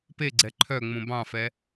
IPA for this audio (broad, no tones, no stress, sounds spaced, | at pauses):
p e ɡ͡ǀ ɛ ǃʰ œ ŋ͡m ũ b ɑ̃ f ɛ